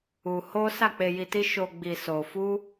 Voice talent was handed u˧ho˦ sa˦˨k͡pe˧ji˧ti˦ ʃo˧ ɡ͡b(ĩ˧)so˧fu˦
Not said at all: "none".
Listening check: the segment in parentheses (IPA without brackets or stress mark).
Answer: i˧